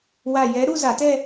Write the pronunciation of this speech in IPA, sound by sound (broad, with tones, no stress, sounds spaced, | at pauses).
w a˧˩ j ɛ˨˥ ɾ u˥˧ z a˧˩˧ t ɛ˥˧